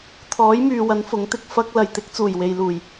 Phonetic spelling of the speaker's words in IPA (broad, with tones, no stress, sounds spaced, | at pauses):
t̪ʰ ɔː˨˥ j m yː˨ w ɐ˨˥ n f ʊ˨˥ ŋ t̪ ɪ˨ k̚ f ɐ˧ k̚ l ɐ˨ j t̪ ɪ˨˥ k̚ t͡s uː˨˩ j w e˨ j l uː˨˩ j